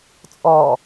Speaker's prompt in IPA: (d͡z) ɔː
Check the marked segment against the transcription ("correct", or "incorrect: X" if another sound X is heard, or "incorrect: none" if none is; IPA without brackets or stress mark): incorrect: t͡sʼ